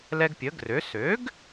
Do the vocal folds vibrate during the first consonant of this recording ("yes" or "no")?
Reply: yes